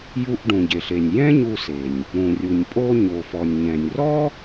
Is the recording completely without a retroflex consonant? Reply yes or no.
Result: no